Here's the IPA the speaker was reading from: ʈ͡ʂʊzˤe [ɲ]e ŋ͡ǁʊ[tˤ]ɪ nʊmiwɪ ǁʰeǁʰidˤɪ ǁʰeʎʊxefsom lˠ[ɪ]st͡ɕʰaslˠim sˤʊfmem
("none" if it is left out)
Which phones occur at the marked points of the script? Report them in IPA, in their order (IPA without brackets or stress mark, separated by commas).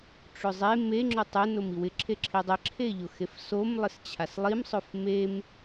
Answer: m, tˤ, ɪ